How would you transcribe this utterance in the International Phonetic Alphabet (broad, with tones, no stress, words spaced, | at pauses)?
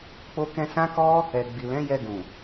k͡po˧kɛ̃˧ sã˦kɔ˦ | ɛ˨ ɡ͡bi˨lɛ̃˨˦jɛ˧ɡũ˨